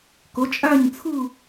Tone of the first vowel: rising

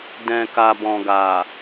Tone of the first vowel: low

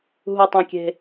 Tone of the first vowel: low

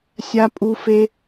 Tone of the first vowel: high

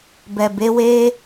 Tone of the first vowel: low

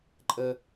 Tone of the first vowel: high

